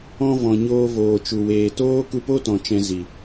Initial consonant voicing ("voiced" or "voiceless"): voiced